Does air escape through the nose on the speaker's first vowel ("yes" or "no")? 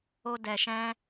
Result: no